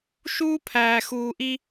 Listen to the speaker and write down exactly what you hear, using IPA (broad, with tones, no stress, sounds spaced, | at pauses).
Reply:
ʃ uː˦ pʰ æː˨ x uː˨ ʔ i˦